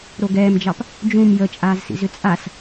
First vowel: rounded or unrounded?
rounded